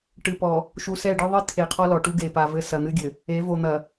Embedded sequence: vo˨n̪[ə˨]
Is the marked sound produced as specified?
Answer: no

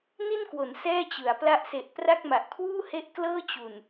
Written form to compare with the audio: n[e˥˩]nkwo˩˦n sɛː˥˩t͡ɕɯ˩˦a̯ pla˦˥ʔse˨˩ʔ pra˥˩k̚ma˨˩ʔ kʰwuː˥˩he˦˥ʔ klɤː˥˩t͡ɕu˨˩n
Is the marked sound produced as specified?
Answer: no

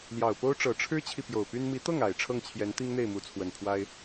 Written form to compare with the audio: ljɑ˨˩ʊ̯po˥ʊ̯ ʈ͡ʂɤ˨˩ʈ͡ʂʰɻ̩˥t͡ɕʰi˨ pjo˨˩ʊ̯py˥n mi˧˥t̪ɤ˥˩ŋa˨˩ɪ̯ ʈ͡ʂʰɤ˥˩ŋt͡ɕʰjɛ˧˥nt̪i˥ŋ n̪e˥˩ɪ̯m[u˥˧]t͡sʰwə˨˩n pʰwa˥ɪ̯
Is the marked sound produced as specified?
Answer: no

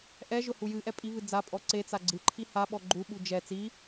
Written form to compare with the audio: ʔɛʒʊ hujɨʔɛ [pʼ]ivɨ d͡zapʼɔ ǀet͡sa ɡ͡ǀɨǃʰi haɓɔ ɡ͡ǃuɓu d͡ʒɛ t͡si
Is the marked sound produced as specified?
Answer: yes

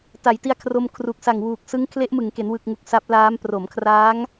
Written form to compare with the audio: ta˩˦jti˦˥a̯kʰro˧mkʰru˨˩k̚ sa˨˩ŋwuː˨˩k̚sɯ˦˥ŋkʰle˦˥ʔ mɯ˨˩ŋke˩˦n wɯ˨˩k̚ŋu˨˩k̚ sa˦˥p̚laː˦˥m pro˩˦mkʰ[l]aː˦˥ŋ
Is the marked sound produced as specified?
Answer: no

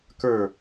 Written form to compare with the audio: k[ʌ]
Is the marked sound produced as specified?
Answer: no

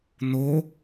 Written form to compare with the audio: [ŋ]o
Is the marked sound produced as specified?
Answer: no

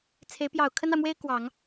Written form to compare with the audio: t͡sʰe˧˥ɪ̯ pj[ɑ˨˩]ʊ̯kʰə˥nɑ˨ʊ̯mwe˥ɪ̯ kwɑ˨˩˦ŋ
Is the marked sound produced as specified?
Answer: yes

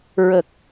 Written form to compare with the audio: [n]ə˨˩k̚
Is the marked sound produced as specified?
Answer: no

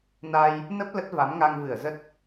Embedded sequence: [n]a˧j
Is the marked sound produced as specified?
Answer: yes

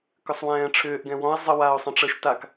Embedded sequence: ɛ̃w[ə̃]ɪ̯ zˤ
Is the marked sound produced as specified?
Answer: no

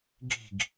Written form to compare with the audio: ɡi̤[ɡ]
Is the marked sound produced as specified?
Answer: yes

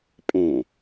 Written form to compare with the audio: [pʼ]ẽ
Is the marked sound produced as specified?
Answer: yes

